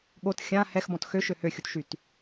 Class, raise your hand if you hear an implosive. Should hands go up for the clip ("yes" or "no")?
yes